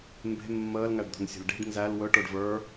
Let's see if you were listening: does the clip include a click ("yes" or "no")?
no